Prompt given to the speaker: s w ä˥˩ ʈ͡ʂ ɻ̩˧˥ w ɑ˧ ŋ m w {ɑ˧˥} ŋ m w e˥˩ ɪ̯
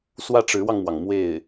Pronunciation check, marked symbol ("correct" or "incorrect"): incorrect